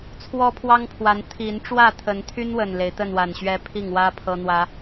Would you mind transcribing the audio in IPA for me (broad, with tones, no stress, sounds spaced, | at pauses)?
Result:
t͡sʰ w ɔ˦ pʰ w ɑ˦ ŋ pʰ w a˨˦ n t̪ʰ i˨˦ n ʈ͡ʂ w ä˥˨ t̪ʰ ə˨˦ n t̪ʰ y˦ n w ə˨˩ n l e˨˦ ɪ̯ t̪ ə˥˨ n w a˨˩ n ɕ ɥ ɛ˦ pʰ i˥˨ ŋ w ä˦ pʰ ɤ˦ n̪ w ä˦